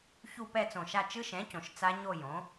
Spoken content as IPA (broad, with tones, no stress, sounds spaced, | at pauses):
ç u˥˧ p ɛ˥˧ t͡s õ˧˩ ʃ a˥˧ t͡ʃ ɯ˦˥ ʃ ɛ̃˩˥ c õ˩ ʃ t͡s a˦˥ ɲ o˥˧ j õ˩˥